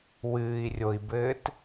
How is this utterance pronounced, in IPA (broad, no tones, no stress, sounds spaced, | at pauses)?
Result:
w ɨː i̯ rʲ o i̯ b ɘː t